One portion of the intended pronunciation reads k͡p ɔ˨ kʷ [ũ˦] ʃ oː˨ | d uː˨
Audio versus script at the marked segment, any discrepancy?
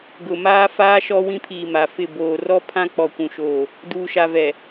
yes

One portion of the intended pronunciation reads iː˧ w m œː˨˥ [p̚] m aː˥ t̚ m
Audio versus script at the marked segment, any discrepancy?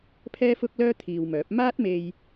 no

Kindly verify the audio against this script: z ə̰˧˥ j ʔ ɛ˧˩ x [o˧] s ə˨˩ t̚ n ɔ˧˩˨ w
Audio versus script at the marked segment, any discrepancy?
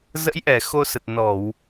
no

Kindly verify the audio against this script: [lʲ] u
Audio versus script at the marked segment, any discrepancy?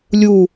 no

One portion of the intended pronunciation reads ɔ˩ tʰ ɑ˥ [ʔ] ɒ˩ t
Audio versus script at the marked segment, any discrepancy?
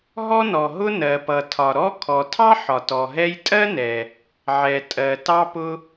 yes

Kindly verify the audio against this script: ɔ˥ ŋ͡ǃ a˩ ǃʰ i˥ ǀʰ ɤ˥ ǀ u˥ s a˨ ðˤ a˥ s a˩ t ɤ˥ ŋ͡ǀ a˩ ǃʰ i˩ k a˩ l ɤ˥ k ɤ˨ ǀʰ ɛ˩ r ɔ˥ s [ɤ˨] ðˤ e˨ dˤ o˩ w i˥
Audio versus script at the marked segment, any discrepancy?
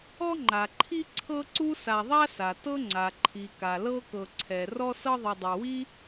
yes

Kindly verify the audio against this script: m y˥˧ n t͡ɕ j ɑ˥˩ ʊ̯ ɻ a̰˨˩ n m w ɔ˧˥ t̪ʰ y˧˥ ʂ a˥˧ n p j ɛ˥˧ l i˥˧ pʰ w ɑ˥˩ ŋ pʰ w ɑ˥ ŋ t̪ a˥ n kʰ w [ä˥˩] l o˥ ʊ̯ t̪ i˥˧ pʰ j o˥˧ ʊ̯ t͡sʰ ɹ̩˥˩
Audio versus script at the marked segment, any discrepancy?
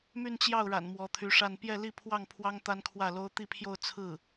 no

